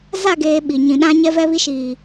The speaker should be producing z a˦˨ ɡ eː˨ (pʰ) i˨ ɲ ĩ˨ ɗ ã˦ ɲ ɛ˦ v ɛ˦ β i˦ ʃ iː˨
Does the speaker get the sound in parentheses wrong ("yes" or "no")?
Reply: yes